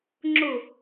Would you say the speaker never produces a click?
no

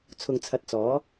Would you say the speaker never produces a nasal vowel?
yes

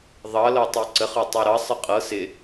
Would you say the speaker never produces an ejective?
no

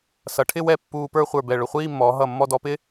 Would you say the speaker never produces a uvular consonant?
no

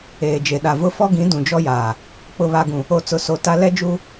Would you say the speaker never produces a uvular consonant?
yes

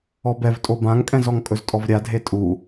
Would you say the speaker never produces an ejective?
no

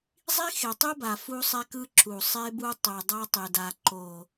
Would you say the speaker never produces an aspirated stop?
yes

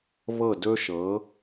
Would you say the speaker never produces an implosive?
yes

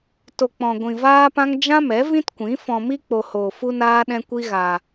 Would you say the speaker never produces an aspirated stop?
yes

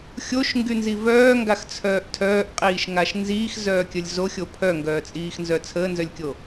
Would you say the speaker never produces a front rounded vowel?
no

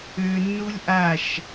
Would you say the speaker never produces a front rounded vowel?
no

